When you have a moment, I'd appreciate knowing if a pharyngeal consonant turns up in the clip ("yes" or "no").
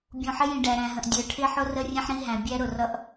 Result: yes